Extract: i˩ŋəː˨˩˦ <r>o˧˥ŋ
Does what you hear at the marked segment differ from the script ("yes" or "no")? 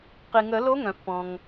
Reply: yes